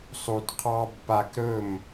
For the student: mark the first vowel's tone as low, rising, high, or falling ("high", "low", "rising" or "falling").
low